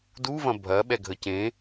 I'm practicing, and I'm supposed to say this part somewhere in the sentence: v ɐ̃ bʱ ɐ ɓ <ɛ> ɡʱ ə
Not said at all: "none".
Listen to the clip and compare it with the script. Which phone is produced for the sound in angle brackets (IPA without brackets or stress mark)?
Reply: ɛ